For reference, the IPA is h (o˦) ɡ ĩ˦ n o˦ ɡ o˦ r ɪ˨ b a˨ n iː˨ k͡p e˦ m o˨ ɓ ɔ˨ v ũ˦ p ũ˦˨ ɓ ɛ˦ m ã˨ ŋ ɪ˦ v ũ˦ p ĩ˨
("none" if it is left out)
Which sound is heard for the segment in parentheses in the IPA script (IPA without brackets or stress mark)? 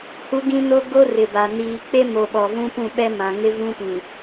u˦